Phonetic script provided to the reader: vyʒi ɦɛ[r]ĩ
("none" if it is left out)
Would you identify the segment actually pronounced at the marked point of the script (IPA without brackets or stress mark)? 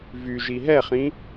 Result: χ